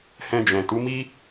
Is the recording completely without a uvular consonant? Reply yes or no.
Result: yes